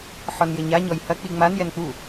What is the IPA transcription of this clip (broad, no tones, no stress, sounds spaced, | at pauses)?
ħ ɔ n j ɘ ɲ a ɲ ɔ j h ɐ k͡p i ŋ͡m a n j ɛ n k͡p u